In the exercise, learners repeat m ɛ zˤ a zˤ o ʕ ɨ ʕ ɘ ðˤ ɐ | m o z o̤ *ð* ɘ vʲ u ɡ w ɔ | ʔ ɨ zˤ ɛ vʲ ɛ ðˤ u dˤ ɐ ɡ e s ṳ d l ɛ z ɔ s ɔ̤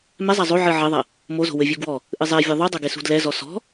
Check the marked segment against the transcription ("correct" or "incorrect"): incorrect